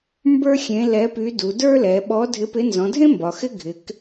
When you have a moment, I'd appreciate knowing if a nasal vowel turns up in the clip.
yes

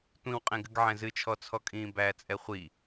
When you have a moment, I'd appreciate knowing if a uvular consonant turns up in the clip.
yes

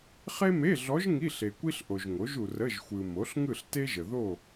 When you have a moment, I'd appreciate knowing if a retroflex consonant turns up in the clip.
no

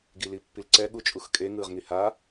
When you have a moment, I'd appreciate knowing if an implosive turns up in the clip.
yes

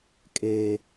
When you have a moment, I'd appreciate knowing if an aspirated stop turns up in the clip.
no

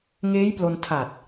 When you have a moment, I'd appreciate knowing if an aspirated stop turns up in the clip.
yes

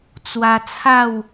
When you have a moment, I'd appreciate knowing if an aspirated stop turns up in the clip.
yes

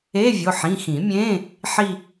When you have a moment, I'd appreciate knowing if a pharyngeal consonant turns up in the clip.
yes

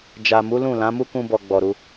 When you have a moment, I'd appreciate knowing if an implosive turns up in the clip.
no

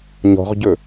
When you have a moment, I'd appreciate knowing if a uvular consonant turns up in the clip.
yes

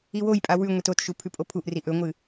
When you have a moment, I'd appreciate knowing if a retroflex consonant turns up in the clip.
no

